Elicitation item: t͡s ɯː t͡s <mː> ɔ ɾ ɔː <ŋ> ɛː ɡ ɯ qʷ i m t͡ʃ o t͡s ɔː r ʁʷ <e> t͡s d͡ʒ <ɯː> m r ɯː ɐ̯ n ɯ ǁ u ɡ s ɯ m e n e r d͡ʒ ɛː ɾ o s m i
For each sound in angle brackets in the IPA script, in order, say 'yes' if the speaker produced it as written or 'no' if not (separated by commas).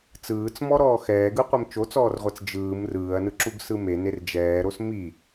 no, no, no, yes